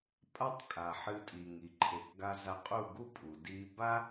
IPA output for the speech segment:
pʼa˦tˤkʼa˨ ħɨ˧tʼi˨ŋi˨ ǃʰe˨kɡa˧ za˧qʼu˦˨ɡu˦pʼu˨ di˧ba˦

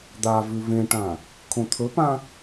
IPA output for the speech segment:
d̪a vʉvẽʈã | kʰõt̪ʰɵpã

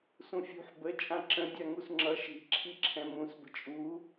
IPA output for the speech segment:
sũfʲṳħ bə t͡ʃʼãǁə̃ dʲaŋusŋ͡ǁʌ ʃi̤ ǁʰiǁʰɛ̃mũs bə̤t͡ʃʼu

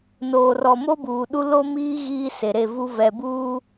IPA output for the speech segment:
noː˨rɔ˨ mo˦buː˨ɗu˦ lo˦miː˦ ɣiː˦se˨ɾe˦˨vu˦ vɛ˨buː˦

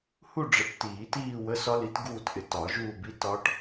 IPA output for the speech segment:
hu˥˧ ɖ͡ʐə˨˥ʈ tiː˨˩˦tiː˥˧ wə˧˥˧sɒ˦˥li˨˥t ɡuː˥˧tʔɪ˧˩ tɒ˨˩˦ʒuː˥˧bi˧˥˧ tɒ˦˥ʈ

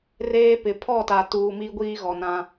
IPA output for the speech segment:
reː˦pɪ˨ pʰɔ˦˨ta˨tuː˨ mi˦ɡʷiː˦ɣɔ˨ nã˦

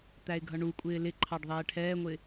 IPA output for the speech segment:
t̪æɪ̯ɡʱʌɳukʷʼɪː lɪ ǃʰɑɖðˤɛːʈʰɛːŋʷɪ

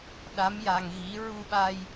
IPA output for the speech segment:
ɗa˧˥mja˧ŋɣi˧˥ ɹu˧ɓa˧j

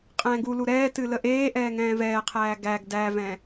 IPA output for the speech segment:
qʼɛ̃ːɡulu ɾɛːtɨ ləʔeːʔɛː ŋɛ̃ːvɛːqʰæː ɡæɡ dævɛ̃

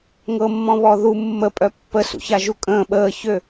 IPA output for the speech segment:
ŋɤmːɔ̃βɔ ðu mːəpʼœ pːəsṵça ʒukʼə̃ː ɓəːçø

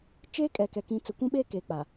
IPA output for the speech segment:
t͡ʃeː˦kʼɛ˨kɛ˨ kĩ˨ t͡sʊ˨kʷũ˦ɓeː˦ keː˨k͡paː˨

